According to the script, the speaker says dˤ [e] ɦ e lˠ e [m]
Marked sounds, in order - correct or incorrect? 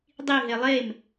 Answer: incorrect: i, correct

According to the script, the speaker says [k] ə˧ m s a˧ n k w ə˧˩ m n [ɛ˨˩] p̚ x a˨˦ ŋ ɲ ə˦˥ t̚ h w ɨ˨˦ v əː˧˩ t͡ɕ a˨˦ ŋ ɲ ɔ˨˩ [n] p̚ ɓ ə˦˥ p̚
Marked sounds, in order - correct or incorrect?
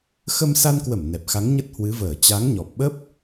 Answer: incorrect: x, correct, incorrect: none

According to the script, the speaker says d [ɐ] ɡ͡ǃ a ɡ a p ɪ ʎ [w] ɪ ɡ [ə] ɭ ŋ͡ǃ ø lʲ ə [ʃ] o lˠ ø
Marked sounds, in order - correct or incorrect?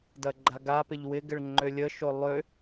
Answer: correct, correct, incorrect: ɪ, correct

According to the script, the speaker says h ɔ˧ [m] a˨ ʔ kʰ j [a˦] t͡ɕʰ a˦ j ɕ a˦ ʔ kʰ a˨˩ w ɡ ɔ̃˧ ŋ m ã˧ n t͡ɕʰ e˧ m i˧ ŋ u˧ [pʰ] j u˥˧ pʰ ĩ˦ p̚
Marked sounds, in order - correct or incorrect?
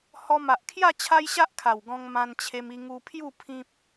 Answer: correct, incorrect: a˥˧, correct

